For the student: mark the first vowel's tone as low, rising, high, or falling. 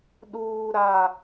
high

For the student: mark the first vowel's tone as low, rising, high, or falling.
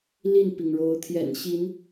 falling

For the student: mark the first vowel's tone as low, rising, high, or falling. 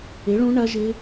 rising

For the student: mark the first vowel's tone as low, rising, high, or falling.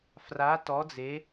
rising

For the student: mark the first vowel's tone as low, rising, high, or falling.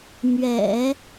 low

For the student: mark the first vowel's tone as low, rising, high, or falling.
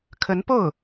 rising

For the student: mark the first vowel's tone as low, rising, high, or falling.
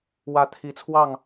rising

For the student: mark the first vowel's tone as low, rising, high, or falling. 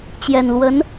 low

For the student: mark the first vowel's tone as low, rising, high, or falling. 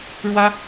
high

